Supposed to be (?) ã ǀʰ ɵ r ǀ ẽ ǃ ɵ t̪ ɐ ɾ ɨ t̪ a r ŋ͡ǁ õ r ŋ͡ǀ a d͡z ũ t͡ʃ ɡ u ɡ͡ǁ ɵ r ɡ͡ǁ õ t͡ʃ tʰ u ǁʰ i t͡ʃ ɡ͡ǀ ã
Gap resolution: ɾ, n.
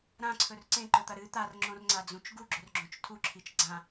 ɾ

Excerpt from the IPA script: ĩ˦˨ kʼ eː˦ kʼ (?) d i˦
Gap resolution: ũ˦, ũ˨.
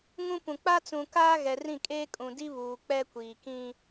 ũ˨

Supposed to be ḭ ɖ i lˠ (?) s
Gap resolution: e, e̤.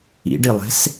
e̤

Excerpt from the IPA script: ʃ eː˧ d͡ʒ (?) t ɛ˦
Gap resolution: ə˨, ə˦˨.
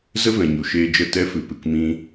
ə˦˨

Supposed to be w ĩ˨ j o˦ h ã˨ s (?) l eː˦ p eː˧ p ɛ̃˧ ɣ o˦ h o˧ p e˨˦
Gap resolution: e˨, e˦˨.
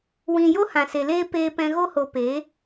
e˨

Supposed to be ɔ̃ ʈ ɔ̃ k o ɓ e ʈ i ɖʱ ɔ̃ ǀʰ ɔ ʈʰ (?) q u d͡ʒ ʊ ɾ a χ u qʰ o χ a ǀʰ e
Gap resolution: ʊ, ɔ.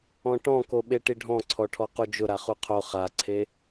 ɔ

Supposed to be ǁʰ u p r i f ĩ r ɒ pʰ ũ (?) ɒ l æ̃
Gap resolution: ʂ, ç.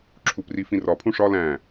ʂ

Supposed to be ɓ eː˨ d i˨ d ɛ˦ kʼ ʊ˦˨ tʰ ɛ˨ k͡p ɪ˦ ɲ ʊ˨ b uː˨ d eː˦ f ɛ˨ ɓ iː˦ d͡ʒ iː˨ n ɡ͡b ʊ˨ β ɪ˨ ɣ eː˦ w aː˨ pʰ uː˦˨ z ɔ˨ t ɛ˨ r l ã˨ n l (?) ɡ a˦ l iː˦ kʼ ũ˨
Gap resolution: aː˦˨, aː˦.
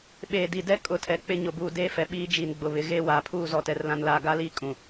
aː˦˨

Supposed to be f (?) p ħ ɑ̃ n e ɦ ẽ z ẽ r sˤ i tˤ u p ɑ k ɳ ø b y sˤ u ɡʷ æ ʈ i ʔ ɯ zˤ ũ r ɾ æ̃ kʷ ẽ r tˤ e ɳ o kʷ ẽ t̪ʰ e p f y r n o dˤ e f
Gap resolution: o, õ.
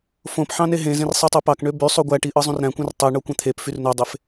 õ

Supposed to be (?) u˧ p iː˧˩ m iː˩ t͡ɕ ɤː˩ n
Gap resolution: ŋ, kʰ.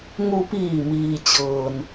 ŋ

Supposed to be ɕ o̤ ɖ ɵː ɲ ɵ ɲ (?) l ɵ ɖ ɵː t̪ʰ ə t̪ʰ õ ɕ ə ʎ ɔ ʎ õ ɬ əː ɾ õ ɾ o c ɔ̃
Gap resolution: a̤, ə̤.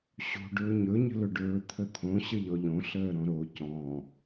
ə̤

